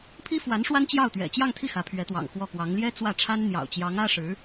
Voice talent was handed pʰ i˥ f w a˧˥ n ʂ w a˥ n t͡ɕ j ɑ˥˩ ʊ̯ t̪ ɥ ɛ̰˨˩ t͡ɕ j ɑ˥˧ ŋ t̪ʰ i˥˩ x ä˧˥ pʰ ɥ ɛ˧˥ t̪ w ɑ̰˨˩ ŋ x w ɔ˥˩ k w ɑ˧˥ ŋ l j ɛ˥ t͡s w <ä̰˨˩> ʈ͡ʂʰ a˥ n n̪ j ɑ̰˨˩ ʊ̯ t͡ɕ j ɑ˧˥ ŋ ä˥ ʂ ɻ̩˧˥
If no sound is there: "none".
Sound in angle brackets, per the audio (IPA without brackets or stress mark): ä˥˩